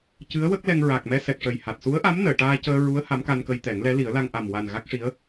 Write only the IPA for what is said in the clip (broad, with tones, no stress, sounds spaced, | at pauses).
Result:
c ɨ˧˥ ə̯ w ə˦˥ k̚ l ɛ˧ ŋ ɹ a˨˩ k̚ m ɛ˧ s ɛ˨˩ k̚ ʂ ə˨˩ j h a˨˩ t̚ s u˧˥ ə̯ ʔ a˧˥ m n əː˨˩˨ ʈ aː˧ c əː˧ ɹ u˧˥ ə̯ h a˧˥ m k a˧ n k ə˧ j t̪ ɛ˨˩˦ ŋ l ɛ˧˥ l i˨˩˦ ə̯ l a˧ ŋ ʔ a˨˩ m w a˨˩ n ɣ a˦˥ k̚ ʂ i˧˥ ə̯